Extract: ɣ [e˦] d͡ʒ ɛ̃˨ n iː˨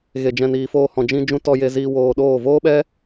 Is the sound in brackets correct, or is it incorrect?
incorrect